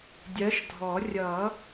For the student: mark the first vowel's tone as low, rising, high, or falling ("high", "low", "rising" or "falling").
rising